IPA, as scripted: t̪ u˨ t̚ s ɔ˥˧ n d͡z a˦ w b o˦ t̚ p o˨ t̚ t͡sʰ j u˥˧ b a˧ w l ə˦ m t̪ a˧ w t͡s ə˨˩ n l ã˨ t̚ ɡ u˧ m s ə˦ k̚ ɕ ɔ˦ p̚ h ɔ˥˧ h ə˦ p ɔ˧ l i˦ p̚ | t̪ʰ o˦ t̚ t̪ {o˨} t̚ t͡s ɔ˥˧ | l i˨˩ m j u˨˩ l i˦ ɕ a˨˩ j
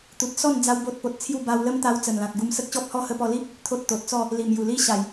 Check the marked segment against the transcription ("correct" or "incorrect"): correct